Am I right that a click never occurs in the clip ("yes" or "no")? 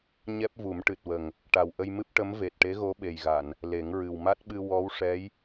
yes